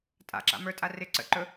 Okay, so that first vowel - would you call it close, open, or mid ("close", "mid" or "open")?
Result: open